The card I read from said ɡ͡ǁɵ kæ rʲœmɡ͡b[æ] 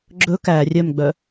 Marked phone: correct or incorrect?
incorrect